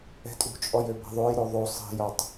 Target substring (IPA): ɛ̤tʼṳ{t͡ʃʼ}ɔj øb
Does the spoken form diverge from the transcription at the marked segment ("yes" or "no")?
no